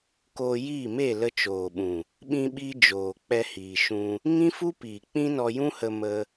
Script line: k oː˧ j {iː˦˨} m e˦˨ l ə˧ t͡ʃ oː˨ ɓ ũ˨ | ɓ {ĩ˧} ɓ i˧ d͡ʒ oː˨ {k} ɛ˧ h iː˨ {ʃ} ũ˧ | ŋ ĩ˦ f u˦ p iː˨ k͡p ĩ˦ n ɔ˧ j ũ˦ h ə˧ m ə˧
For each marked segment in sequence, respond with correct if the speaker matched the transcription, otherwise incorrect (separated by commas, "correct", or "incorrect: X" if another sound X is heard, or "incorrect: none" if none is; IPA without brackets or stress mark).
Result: correct, correct, incorrect: k͡p, correct